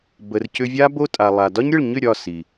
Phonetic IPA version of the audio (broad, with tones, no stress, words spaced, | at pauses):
bə˨r cʏ˧vʲa˦bo˦ tʼa˨lˠa˨ dɒ˦ɲɾʲə˦˨ɭɲʏ˦˨ ɾʲɒ˦˨si˨